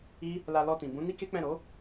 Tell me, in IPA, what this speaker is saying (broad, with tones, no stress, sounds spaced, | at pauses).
i˦ | l a˧ l ɔ˧ t ĩ˨ b ũ˨˦ n i˦ k e˦ k͡p ɛ̃˦˨ ɾ o˨˦